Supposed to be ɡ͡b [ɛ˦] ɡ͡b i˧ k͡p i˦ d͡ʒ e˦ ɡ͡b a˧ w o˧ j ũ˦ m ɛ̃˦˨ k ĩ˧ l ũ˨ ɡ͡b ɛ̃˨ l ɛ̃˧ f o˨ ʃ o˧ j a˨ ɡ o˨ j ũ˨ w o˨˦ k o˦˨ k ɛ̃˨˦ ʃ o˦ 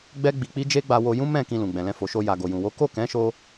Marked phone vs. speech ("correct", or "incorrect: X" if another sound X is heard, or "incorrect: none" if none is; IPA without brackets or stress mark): correct